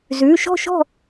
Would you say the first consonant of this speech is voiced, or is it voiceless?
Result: voiced